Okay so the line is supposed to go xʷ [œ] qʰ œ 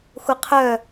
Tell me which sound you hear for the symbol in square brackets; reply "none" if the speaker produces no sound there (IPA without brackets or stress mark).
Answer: ɛ